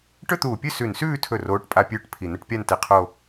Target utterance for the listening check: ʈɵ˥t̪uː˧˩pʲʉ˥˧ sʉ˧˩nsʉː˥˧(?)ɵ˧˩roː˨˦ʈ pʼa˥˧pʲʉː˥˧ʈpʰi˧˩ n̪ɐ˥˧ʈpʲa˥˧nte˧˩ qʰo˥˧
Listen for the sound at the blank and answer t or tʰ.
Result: tʰ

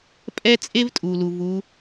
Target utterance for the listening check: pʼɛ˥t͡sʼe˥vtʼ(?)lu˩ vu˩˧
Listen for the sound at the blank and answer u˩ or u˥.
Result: u˩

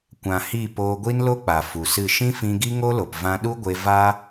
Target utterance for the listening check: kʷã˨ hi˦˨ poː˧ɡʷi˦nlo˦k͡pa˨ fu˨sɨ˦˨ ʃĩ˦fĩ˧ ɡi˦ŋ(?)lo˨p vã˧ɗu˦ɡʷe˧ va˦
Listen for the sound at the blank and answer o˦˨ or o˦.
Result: o˦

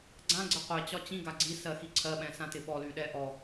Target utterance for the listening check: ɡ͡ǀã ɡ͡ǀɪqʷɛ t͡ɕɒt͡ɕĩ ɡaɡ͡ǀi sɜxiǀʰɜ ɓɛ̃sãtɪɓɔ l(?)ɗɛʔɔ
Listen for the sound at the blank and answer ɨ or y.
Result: y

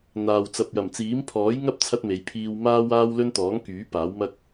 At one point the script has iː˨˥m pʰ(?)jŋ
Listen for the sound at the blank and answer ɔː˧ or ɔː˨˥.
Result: ɔː˨˥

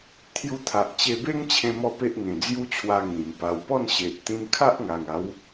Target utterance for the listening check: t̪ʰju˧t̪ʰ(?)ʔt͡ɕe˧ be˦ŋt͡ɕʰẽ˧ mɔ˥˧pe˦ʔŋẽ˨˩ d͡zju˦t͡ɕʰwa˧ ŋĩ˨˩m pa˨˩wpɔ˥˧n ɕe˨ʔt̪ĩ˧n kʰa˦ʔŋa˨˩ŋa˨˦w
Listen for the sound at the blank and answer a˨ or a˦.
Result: a˨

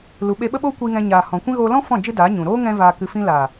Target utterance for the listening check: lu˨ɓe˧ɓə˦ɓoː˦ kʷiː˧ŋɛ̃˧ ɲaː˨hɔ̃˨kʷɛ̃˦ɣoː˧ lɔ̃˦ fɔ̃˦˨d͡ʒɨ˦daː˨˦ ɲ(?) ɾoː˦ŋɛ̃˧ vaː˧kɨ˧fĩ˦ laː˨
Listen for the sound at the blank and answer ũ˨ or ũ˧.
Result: ũ˨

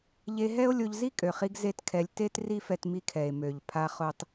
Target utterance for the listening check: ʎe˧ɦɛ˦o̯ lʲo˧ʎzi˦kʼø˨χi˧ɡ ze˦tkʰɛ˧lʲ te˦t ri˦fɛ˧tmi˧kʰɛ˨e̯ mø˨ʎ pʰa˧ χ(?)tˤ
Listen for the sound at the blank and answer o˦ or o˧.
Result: o˧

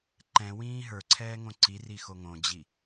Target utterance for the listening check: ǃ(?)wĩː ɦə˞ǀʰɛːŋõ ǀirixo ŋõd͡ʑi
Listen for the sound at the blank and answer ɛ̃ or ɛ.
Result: ɛ̃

